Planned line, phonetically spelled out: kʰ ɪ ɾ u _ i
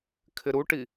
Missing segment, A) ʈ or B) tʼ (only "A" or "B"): A